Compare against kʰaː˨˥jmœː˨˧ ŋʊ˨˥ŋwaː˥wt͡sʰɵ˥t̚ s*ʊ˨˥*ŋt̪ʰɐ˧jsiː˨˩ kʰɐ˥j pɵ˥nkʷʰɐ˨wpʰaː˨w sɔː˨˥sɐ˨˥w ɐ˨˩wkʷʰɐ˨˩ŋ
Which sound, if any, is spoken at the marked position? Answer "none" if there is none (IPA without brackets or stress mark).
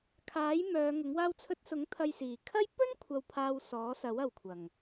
ʊ˨˥